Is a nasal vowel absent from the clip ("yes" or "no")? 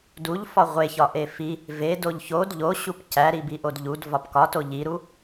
yes